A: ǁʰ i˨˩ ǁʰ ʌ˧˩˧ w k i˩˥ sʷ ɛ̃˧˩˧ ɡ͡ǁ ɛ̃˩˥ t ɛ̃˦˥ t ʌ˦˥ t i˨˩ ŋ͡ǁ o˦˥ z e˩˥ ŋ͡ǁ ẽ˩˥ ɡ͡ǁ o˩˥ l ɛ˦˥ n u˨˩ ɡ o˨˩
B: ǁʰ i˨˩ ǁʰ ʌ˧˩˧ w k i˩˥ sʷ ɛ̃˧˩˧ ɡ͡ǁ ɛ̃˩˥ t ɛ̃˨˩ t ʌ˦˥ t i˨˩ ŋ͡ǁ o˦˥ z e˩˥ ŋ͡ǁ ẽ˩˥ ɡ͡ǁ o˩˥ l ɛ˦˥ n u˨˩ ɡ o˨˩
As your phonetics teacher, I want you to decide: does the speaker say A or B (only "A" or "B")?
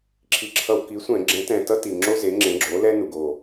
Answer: B